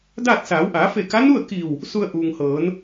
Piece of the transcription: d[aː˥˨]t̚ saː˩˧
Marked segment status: correct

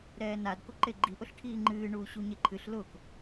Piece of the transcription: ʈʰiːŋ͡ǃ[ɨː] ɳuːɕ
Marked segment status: correct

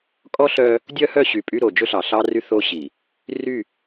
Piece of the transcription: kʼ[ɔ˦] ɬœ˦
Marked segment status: correct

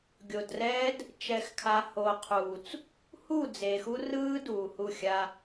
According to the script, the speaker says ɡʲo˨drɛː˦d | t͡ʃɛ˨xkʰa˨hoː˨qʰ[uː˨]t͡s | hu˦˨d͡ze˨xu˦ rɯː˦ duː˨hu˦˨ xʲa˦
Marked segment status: correct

